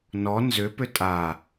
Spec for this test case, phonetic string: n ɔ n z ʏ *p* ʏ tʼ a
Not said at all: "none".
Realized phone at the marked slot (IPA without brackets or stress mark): p